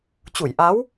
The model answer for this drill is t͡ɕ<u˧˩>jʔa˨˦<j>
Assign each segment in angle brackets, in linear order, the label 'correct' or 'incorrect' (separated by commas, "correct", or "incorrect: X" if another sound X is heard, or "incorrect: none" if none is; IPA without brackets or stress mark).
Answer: correct, incorrect: w